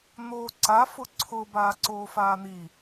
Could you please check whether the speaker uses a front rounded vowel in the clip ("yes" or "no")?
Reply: no